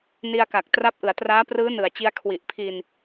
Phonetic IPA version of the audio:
n i˧ a̯ k a˨˩ k̚ t r a˦˥ p̚ ʔ ɯ˩˦ a̯ t r aː˦˥ p r ɯː˦˥ n ɯ˨˩ a̯ t͡ɕ i˧ a̯ kʰ w i˨˩ ʔ pʰ i˧ n

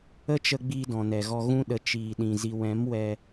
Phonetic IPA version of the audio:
ə˦ t͡ʃ ə˧ ɡ͡b iː˧ d ɔ̃˨ n ɛ˨ ɣ ɔ˧ ɣ ũ˧ ɗ ə˨ t͡ʃ iː˨ ɗ ĩ˨ z i˨ w ɛ̃˨˦ m w ɛ˧

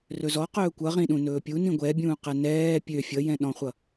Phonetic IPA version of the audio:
r ɵ z ɔ q ɵː kʷ ʌ ʁ ĩ ɗ ũ n ɵː pʲ u n ĩ ɡʷ ɛ bʲ ũː q ɛ n ɛː pʲ ø fʲ ʌ j ɛ̃ ɗ ɔ̃ χʷ ʌ

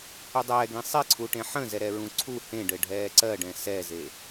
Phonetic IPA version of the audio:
h u dˤ ɛː ɡ ẽ sˤ e ǀʰ u ʈ ẽ ħ ə̃ z ɛ ɾ ɛ ɹ ũ ǀʰ u h ẽ ɖ ɘ ɖʱ ɛː ǀ ɜ ɖ ɛ̃ s ɛ z e

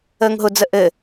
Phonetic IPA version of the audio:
əː ŋ ɦ ʊ d͡z ə ʔ ɘ

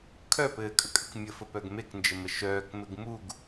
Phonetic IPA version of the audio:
kʰ œ p ɘː kʼ ə kʼ ɘ k mʲ ə f ə p œ ɡ m e k n d͡ʒ ɘ m ə ʃ œː k m ɘ ɡ m u ɡ

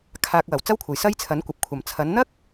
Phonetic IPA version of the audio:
kʰ aː˧ k̚ w ɐ˨˩ w t͡s ɐ˥ w kʷʰ ɐ˨˩ j s ɐ˥ j t͡sʰ ɐ˨˥ n kʷ ɐ˨ p̚ kʷʰ ɐ˨˩ m t͡sʰ ɐ˨˥ n n̪ ɐ˥ k̚

